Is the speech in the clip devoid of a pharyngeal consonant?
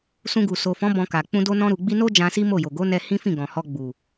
yes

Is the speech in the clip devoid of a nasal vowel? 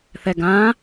no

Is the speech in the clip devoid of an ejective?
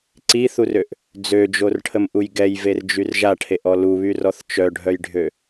yes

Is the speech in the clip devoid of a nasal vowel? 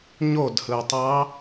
yes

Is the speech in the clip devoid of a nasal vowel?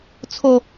yes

